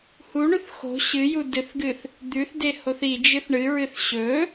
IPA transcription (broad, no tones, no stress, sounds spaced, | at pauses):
h u ɳ ʉ θ x o̤ ɕ ɨ j u d ɨ θ ɡ ɨ θ | d̪ ʉ θ d e h o θ i d͡ʒ ɨ θ ɳ ɨ ɹ ɨ θ ɕ ɵ